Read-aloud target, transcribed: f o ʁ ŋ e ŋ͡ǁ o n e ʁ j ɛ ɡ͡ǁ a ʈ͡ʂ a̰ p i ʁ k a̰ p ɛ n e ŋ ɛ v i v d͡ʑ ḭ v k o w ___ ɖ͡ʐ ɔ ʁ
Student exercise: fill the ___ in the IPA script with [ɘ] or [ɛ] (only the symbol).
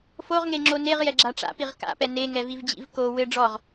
ɘ